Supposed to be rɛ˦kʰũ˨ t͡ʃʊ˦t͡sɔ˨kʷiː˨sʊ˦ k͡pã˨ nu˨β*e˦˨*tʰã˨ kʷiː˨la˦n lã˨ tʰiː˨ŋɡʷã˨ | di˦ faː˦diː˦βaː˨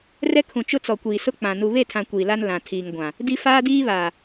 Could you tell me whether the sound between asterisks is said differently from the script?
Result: no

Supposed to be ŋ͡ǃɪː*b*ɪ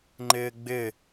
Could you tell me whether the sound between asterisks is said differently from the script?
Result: yes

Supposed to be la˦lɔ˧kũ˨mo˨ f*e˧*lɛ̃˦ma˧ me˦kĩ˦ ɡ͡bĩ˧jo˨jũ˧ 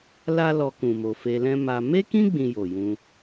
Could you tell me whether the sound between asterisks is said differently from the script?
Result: no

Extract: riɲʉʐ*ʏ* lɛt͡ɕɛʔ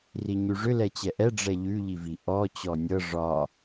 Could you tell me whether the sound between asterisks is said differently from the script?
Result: no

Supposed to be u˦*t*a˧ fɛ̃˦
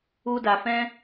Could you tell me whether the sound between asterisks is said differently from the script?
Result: yes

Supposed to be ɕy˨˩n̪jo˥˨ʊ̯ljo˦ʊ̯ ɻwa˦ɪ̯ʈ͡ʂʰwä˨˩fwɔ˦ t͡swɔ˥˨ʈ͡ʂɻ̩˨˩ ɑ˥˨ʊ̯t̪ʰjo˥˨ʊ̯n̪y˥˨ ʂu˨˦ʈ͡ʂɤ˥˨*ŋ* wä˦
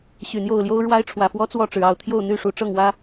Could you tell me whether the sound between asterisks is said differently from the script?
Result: no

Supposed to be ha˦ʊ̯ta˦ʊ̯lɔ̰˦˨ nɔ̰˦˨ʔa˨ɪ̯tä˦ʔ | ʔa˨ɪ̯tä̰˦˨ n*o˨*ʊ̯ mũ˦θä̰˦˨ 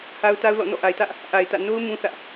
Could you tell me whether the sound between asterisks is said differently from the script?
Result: yes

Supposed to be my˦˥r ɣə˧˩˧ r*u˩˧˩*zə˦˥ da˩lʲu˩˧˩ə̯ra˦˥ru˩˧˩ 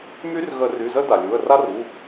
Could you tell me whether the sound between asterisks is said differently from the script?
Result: yes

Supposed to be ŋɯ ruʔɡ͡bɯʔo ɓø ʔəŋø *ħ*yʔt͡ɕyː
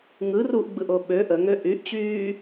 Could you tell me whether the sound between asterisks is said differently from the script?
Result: yes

